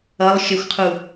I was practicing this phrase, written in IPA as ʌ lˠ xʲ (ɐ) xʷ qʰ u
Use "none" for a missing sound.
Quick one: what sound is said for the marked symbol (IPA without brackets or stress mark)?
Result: ə